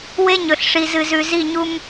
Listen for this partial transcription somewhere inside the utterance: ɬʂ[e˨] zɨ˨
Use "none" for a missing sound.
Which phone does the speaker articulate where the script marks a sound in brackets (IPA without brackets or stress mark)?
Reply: i˨